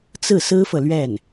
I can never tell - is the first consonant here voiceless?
yes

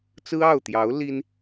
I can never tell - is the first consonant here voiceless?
yes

